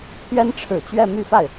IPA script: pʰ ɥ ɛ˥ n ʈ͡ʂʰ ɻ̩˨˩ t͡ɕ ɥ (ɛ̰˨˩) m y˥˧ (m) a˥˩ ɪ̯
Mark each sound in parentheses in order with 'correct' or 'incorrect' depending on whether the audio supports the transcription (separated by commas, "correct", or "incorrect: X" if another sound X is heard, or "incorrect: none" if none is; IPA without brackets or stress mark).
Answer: incorrect: ɛ˥˧, incorrect: f